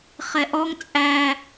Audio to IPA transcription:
χ ɛ ʔ ɔ ŋ t͡sʼ æ

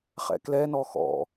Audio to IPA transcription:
χ ɛ̰ k l ɛ n ɔ x ɔ̰

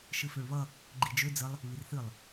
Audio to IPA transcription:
ʃ ɨ f ø ɭ β ʌ | ɡ͡ǃ i d͡ʒ ø d͡z ə lˠ | β i r θ ɨ lˠ

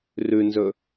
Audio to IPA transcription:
r ʉ n z ɵ

